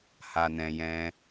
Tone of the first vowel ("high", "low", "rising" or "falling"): low